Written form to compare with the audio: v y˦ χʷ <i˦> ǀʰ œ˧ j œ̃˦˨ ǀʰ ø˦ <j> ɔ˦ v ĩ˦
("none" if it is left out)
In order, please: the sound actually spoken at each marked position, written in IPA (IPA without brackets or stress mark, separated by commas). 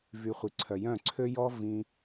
i˧, j